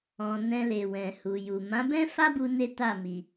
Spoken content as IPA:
ɔ̃˨ nɛ̃˧le˨ wɛ̃˨hu˨ju˨ mã˨˦bɛ̃˦fa˦bu˧ ne˦ta˦˨ mi˨

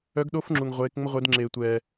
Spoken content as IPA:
œ˧˥ɡɗo˧˥fŋ͡ǁu˩ŋ ʁʷeː˩˧kŋ͡mə˧ʁʷe˩˧dŋ͡ǁeː˩ tʷɛː˩

